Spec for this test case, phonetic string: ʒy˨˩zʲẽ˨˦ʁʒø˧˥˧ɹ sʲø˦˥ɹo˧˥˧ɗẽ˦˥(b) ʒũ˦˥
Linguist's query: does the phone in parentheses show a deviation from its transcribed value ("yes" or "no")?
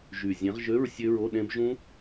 no